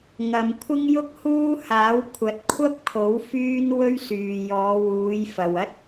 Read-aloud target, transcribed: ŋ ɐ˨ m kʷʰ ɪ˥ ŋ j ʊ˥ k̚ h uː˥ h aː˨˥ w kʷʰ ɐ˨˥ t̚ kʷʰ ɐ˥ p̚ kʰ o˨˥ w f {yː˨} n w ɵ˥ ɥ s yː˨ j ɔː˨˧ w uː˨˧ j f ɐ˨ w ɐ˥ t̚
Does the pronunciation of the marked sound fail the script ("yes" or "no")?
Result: yes